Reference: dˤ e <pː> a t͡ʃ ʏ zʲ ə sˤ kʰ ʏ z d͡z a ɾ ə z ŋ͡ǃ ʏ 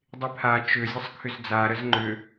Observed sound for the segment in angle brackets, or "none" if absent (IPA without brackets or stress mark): pʰ